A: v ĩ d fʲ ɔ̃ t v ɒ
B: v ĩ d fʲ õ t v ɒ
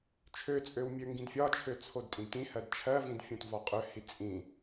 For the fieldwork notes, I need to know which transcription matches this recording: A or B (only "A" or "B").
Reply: B